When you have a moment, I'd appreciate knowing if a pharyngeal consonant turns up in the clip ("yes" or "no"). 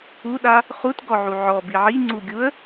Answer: yes